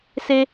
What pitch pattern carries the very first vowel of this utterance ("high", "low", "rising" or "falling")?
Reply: high